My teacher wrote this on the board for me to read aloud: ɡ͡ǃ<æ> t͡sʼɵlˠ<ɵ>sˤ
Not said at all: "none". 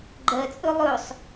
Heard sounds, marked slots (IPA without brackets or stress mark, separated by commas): ɜ, ɵ